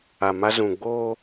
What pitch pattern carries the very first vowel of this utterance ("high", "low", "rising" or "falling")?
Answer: low